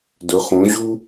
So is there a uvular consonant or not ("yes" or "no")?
yes